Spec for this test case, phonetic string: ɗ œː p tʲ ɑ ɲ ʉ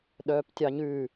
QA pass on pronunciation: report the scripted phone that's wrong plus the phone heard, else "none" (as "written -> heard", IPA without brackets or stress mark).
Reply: none